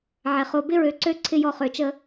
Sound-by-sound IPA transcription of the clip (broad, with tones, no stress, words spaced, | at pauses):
ʕɛ˨χo˧ bɪ˦ɹø˧ ǀø˦ ǀʰɪ˧jɔ˧ χø˧t͡ʃə˦